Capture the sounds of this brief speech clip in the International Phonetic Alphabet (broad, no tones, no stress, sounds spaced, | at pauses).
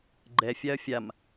ɡ͡ǃ ɛ fʲ a ɐ̯ fʲ a m